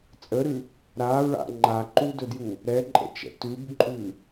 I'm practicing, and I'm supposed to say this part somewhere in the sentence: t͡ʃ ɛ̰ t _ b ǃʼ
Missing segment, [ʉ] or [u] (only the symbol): ʉ